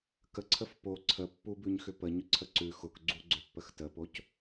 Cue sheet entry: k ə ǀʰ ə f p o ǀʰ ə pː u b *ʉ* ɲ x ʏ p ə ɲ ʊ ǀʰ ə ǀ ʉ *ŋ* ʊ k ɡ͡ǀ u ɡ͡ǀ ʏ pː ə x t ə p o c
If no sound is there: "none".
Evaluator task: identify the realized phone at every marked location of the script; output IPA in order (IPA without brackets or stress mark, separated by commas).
ʉ, x